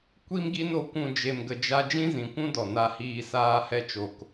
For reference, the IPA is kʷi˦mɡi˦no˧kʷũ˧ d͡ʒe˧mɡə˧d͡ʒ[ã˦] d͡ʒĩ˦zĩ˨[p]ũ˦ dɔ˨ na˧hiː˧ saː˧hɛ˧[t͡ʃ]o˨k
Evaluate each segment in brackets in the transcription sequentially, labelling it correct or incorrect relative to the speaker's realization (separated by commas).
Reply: incorrect, incorrect, correct